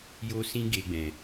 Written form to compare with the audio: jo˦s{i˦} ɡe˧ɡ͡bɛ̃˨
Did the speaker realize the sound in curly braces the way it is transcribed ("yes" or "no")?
no